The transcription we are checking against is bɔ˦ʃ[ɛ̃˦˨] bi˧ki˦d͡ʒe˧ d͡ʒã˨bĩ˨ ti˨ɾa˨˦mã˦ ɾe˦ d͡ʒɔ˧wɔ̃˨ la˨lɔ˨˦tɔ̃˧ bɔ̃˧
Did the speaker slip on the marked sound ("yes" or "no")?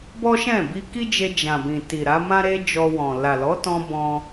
no